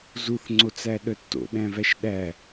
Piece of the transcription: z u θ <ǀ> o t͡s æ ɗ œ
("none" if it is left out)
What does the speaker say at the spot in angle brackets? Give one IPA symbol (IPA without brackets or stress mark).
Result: ŋ͡ǀ